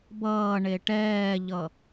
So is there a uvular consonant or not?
no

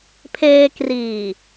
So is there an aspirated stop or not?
yes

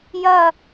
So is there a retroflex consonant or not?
no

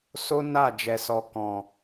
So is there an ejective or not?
no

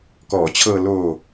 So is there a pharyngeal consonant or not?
no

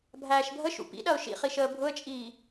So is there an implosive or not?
yes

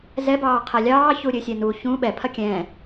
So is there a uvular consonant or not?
yes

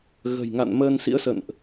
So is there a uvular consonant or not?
no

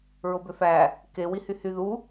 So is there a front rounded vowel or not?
yes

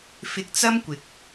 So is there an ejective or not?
no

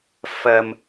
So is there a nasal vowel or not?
no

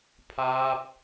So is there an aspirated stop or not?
yes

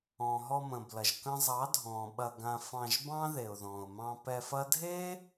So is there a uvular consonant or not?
no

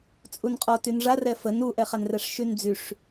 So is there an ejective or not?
yes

